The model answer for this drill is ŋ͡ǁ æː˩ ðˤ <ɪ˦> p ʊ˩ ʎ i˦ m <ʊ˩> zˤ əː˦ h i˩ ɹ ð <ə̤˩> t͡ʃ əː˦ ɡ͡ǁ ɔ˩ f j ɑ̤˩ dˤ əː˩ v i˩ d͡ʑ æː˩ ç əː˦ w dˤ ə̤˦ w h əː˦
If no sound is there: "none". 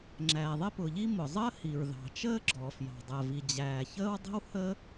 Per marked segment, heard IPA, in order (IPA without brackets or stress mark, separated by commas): ɪ˦, ʊ˩, ɑ̤˩